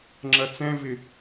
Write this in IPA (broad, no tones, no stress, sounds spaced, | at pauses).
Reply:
ŋ͡ǁ ɐ t͡s ɛ̃ v ɪ